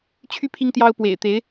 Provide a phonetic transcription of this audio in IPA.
t͡ɕʰ y˥ pʰ i˥ ŋ t̪ j ɑ˥ ʊ̯ p w ḛ˨˩ ɪ̯ t̪ e˧˥ ɪ̯

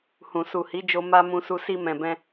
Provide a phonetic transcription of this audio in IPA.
h ũ˨ s u˨ h i˨˦ d͡ʒ o˧ m a˧ m ũ˧ s u˧ s i˧ m ɛ̃˨ b ɛ̃˧

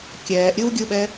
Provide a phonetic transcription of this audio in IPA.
kʲ ɛː ʔ ɾʲ ɯ w ɡʲ ɯ ɓ ɛ

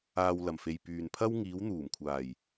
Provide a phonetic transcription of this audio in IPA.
aː˧ w l ɐ˨˩ m f e˨ j p yː˨ n pʰ ɐ˥ w ŋ iː˨˧ w n̪ uː˨˩ m kʷʰ aː˨˩ j

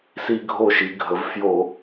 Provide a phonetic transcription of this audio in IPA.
s i˦ ɡʱ o˥˩ ʃ i˩˧ ɡʱ ə˩˧ v f j o˧˩˧

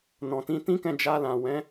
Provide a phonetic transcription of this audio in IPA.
n ɔ̃˨ t ĩ˨˦ t ĩ˦ k ɛ̃˦˨ d͡ʒ a˧ l ã˨ w ɛ̃˨˦

